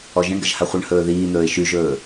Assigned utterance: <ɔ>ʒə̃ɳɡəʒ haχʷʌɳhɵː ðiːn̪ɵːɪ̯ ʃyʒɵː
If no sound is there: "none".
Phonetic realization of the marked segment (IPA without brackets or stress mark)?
ɔ